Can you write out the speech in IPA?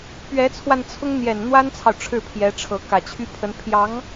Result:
p ɥ ɛ˧˥ t͡sʰ w a˧ n t͡sʰ ʊ˥ ŋ n̪ j ɛ˨˩ n n̪ w a˥ n t͡sʰ ɑ˨ ʊ̯ ʈ͡ʂʰ ɻ̩˥˩ pʰ j ɛ˧˥ ʈ͡ʂʰ ɤ˧˥ k ä˨˩ t͡ɕʰ y˥ pʰ ə˧˥ n pʰ j ɑ˧˥ ŋ

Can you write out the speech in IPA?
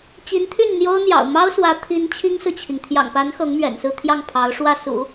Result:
t͡ɕ i˧˥ n t̪ʰ y˥˩ n n̪ j o˥ ʊ̯ n̪ j ɑ̰˨˩ ʊ̯ m ɑ˥ ʊ̯ s w ä˧˥ t̪ʰ i˧˥ n t͡ɕʰ i˥ ŋ s ɹ̩˨ t͡ɕʰ i˩ ŋ t̪ʰ j ɑ̰˨˩ ŋ p a˧˥ n x ɤ˧˥ ŋ m ɥ ɛ̰˨˩ n s ɹ̩˥˧ t̪ʰ j ɑ˥˩ ŋ pʰ ɑ˧˥ ʊ̯ ʂ w ä˥˩ s ṵ˨˩˦

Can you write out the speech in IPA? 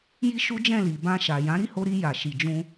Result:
j i˦ ʃ u˦ d͡ʒ ɛ̃˦˨ l i˨ b ã˧ ʃ a˨ j ã˨˦ ɾ i˦˨ h o˧ ɾ i˧ j a˨ ʃ i˨ d͡ʒ ũ˧

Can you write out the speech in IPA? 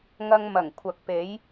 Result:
ŋ ɐ˧ ŋ m ɐ˨˩ ŋ kʷʰ ɐ˨ k̚ p e˨˥ j

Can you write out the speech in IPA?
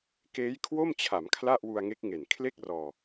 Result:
k eː˦˥ j kʰ w o˥˩ m t͡ɕʰ a˩˦ m kʰ l a˥˩ ʔ w u˧ a̯ ŋ e˦˥ k̚ ŋ e˨˩ n kʰ l e˥˩ k̚ r ɔː˧

